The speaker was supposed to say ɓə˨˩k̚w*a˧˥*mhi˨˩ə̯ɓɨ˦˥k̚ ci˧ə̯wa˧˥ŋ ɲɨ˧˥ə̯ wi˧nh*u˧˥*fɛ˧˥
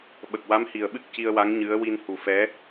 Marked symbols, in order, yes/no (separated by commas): yes, no